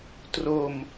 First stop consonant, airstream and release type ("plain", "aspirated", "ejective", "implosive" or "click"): plain